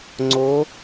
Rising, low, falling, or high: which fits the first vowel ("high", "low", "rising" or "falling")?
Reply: rising